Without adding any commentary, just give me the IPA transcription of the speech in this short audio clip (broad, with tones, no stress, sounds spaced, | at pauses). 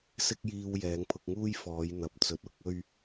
s ɪ˥ k̚ j iː˧ w j ɛː˨˧ ŋ pʰ ʊ˧ k̚ ŋ uː˥ j f ɔː˨˧ j n̪ ɐ˨ p̚ t͡s ɵ˨˥ t̚ ʊ˨ k̚ ɵ˥ ɥ